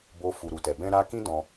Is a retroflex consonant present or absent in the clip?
absent